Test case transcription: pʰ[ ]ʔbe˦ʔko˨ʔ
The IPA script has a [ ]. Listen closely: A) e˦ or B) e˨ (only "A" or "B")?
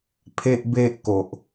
A